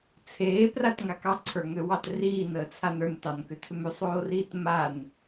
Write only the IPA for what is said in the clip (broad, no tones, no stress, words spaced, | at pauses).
t͡sʰeːpratŋak ɑǀʰə˞ŋøwɑt riːnəːt͡sʰan ə˞ntɑnkʏtʰʏm ʏsˤoːriːt man